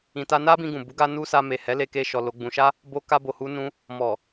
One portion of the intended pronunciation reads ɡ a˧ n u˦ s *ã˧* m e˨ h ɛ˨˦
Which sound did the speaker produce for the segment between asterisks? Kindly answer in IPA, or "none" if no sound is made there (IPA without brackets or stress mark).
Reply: a˧